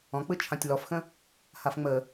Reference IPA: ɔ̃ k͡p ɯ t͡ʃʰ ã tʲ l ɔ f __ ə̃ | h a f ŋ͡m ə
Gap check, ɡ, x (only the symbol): x